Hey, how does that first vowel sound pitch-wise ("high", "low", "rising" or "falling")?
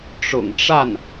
low